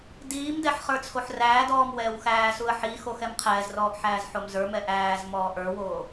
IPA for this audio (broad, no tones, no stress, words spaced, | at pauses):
diːmdɛħ χə˞t͡sʰoħræːdɔːm wɛːwxæːsuə̯ ħi xoxɛmqʰɛːzrɔːʔ ħæːzħomzə˞mɛ ʔæːz mɔːʔə˞woː